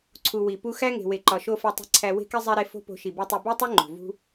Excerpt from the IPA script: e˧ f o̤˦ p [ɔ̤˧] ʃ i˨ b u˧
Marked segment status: incorrect: o̤˧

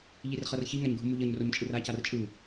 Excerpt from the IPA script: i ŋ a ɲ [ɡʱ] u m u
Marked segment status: correct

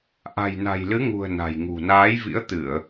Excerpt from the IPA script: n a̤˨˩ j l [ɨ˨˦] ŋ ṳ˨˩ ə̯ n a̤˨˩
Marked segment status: correct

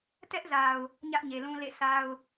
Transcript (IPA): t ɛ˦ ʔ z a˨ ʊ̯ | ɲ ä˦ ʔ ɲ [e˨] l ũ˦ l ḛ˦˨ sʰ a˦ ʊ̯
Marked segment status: correct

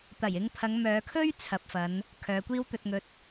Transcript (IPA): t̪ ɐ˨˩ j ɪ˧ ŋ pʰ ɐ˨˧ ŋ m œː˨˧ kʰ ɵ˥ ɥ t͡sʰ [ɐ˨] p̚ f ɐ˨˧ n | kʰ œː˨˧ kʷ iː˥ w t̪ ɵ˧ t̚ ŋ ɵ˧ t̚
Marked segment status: correct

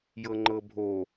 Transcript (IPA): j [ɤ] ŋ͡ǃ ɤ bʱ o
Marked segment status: correct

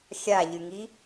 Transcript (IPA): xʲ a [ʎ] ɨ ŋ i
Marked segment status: correct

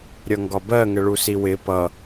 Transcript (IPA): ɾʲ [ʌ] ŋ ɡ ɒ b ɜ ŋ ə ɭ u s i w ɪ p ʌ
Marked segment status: correct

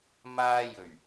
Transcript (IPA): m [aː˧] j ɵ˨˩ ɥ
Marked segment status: correct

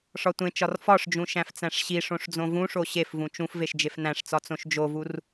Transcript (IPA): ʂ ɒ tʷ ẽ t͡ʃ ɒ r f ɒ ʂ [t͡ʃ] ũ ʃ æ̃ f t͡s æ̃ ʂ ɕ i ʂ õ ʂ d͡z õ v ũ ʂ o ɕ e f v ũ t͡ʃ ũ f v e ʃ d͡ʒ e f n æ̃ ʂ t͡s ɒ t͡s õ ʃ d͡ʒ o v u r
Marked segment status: incorrect: d͡ʒ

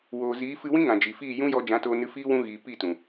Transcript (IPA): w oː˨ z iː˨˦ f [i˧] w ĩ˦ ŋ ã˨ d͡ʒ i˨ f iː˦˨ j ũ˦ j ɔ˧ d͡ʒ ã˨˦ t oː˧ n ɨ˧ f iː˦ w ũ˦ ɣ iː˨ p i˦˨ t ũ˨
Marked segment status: incorrect: ɨ˧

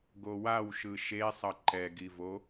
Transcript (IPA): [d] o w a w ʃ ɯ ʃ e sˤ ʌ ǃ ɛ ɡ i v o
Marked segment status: incorrect: ɡ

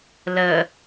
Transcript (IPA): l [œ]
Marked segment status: incorrect: ə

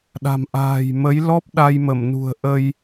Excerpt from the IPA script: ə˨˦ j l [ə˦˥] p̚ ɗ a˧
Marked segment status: incorrect: ɔ˦˥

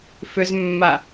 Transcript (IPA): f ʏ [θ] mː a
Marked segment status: incorrect: z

